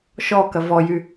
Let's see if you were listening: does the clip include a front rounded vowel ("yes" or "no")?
yes